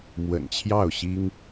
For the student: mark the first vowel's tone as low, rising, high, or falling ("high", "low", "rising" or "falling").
low